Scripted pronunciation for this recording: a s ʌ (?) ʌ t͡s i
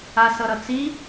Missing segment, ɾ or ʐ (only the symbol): ɾ